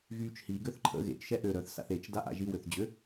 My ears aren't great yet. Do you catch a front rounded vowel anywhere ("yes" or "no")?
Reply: yes